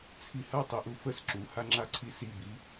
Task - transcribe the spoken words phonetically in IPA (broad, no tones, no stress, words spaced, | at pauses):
t͡sʰihɐ tˤiʔufəs ǁuha ŋ͡ǁaǀʰisibi